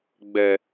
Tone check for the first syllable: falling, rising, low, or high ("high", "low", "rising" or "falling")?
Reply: high